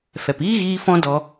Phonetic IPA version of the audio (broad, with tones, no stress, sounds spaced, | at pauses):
f ɛ˨ p iː˦ ɣ iː˦ f ɔ̃˦ d ɔ˧